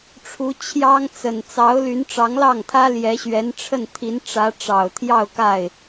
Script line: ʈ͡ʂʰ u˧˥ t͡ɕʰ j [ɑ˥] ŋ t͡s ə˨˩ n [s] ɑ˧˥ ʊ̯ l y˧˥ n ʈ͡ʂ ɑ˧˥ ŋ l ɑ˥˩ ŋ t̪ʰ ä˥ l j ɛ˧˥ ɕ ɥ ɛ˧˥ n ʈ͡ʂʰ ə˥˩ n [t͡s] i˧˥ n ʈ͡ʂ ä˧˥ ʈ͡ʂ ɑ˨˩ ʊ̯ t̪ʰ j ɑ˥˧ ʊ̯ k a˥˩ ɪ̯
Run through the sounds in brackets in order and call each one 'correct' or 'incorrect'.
correct, incorrect: t͡s, incorrect: t̪ʰ

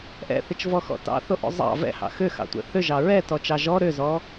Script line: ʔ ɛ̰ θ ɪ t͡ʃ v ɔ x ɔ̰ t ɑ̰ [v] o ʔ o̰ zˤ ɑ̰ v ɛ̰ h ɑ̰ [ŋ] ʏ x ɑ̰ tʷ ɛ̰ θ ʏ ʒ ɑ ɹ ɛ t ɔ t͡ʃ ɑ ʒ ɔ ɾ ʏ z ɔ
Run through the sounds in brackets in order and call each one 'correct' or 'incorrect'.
incorrect: θ, incorrect: x

